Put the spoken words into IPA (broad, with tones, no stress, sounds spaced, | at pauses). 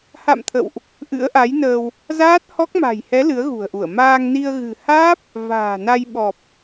h a̰˧˨ m t̪ʰ ə̰˧˨ w ʔ | ʔ ɨ̰˧˥ ə̯ ʔ a˨˦ j n əː˧ w | z aː˦˥ t̚ h ɔ˦˥ k̚ m a̤˨˩ j h ɛ˨˦ l ɨ˨˦ ə̯ ɣ ṳ˨˩ ə̯ ʔ u˧˩ ə̯ m aː˧ ŋ n i˧ ə̯ ɣ ɨ̤˨˩ h aː˦˥ p̚ | v a̤ː˨˩ n a˧ j ɓ ɔ˨˩ p̚